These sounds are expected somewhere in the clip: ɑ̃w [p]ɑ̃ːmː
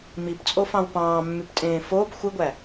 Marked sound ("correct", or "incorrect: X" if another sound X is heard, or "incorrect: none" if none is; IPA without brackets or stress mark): correct